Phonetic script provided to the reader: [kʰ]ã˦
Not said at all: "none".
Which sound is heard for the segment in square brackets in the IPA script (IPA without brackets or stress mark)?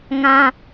ŋ